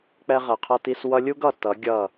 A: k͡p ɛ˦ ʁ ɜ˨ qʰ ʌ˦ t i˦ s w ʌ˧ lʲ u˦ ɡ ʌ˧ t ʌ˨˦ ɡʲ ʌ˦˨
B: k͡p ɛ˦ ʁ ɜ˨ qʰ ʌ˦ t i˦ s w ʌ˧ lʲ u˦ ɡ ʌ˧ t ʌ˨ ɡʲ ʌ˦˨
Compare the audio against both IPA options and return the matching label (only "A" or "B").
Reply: A